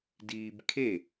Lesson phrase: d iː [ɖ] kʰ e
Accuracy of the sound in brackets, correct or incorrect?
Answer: incorrect